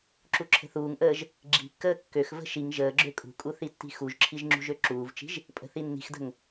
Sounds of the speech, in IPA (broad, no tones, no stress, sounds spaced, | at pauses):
ǁ u ǁʰ ə̤ θ uː ŋ ʔ əː ʒ | ɡ͡ǁ i̤ kː əː kː ø x v ə̤ ʃ i ŋ ʒ əː ɡ͡ǁ ø kʼ ṳ kʼ u θ i tː i̤ x u ʒ ǁʰ i ʒ ŋ͡ǁ ṳ ʒ ø ǁ uː v t͡ʃ i̤ ʒ | pʼ ə̤ θ i nː i̤ x d ə̤ ŋ